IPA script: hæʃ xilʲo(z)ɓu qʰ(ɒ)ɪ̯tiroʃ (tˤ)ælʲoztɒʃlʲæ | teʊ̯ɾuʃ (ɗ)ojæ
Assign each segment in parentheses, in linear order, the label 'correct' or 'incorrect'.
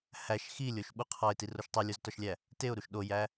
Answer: incorrect, correct, correct, correct

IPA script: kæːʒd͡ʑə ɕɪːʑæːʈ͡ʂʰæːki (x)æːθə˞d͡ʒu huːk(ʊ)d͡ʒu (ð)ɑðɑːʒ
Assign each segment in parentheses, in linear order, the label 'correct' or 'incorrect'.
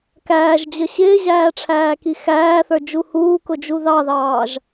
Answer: correct, correct, correct

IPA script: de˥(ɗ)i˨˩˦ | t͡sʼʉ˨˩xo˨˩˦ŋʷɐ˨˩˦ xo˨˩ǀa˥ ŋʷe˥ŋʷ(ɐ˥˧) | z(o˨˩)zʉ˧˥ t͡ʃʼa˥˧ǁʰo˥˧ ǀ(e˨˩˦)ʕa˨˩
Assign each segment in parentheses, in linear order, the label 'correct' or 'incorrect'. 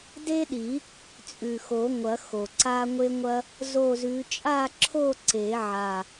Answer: correct, incorrect, incorrect, correct

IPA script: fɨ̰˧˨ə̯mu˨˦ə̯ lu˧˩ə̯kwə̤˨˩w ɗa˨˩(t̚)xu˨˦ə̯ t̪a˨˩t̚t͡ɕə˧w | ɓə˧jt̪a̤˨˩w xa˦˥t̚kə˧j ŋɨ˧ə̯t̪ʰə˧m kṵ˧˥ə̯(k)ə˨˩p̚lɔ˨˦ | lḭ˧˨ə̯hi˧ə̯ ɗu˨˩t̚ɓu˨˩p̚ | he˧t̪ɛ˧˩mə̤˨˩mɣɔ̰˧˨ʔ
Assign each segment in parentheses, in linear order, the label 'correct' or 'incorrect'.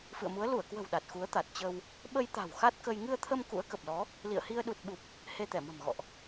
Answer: correct, correct

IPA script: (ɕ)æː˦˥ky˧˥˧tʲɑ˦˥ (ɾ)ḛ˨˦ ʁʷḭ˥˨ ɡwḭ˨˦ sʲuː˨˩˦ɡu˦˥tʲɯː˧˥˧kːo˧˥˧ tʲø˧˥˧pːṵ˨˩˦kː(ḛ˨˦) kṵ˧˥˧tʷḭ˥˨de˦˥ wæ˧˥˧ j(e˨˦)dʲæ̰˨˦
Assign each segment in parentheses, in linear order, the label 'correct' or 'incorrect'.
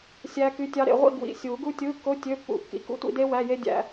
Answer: incorrect, correct, incorrect, incorrect

